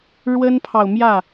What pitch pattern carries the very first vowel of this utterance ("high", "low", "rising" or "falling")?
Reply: high